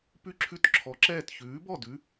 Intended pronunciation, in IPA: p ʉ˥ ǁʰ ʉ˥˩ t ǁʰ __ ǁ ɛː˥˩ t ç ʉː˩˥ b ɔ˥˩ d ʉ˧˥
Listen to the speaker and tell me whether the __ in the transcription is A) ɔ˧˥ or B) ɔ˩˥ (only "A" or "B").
B